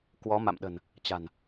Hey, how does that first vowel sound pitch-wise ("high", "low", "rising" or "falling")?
rising